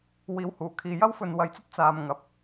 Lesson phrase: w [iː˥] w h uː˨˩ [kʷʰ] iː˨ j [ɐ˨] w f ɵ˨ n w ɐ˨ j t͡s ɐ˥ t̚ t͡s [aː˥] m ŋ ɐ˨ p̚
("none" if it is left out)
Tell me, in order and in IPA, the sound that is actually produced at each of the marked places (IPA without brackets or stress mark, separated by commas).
iː˨˧, kʰ, ɐ˥, aː˨